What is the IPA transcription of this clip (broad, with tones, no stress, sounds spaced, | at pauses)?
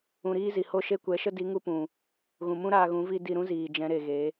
ũ˧ ɾ iː˦ z i˨ h o˧ ʃ e˧ kʷ ɛ˨˦ ʃ ə˦ d i˨˦ ŋ u˧ p ũ˨ | ɣ ũ˨ m ũ˦ ɾ aː˧ ɣ ũ˨˦ v i˧ d i˧ ɾ ũ˦ z iː˨ d͡ʒ ɛ̃˨˦ ɾ e˨ ɣ e˨˦